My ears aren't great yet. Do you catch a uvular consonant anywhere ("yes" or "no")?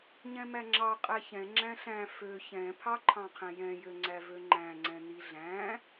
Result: yes